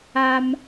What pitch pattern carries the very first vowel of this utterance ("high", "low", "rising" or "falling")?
high